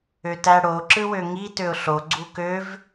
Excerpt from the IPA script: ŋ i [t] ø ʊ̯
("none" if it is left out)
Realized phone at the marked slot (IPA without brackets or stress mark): t